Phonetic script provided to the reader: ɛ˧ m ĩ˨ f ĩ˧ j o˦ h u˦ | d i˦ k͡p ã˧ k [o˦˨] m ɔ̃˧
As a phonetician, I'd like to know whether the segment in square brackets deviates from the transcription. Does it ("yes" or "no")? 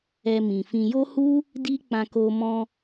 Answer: yes